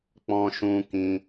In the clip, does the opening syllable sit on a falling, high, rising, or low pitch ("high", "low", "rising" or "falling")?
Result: high